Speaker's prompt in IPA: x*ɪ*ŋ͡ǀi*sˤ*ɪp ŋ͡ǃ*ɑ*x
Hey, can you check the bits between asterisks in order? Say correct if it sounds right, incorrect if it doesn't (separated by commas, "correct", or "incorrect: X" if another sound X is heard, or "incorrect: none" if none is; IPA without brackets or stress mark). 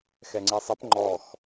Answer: incorrect: ɛ, correct, incorrect: ɔ